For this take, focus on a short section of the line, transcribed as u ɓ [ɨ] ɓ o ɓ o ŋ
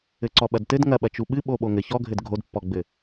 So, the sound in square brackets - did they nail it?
yes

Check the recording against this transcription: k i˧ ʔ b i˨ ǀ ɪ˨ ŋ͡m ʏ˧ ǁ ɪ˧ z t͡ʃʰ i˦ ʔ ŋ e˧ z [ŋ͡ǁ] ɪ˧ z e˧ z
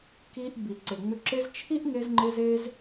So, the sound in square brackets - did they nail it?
no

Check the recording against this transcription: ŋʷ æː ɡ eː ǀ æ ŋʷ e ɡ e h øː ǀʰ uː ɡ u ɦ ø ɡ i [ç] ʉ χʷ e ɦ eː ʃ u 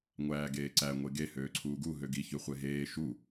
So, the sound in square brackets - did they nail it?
yes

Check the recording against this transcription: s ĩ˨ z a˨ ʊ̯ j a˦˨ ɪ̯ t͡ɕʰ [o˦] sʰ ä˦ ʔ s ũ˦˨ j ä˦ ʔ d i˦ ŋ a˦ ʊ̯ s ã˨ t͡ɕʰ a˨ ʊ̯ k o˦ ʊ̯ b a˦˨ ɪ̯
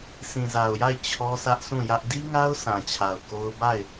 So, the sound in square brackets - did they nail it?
no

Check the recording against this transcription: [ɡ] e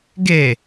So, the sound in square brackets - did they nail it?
yes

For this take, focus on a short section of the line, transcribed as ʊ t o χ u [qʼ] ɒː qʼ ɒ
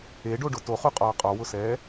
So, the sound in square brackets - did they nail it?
yes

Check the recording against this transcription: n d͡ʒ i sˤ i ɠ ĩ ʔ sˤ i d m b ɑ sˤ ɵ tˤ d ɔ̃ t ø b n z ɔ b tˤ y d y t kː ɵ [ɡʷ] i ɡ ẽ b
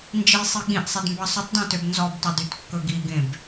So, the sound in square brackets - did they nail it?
no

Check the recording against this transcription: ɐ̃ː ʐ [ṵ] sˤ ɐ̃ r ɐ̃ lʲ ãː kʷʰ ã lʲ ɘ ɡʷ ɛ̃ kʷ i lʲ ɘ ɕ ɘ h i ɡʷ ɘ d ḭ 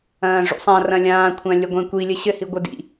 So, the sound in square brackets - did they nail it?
yes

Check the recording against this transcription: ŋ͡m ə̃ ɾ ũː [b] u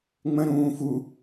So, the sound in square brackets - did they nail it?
no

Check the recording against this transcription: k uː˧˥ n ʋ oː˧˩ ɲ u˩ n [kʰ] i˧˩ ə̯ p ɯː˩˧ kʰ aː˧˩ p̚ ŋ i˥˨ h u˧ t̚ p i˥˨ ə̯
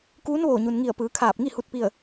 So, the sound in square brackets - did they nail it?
no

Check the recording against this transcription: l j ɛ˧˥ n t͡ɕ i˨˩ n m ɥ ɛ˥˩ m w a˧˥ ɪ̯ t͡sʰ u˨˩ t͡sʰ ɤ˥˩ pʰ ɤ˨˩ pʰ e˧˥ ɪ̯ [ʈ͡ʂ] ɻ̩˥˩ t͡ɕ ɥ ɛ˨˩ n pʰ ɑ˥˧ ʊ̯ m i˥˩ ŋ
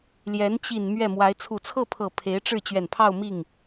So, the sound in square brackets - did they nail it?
yes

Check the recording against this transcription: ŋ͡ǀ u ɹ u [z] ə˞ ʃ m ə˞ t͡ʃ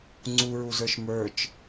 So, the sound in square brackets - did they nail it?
yes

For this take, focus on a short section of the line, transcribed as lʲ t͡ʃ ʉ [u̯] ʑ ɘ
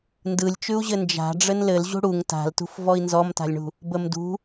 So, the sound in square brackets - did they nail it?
yes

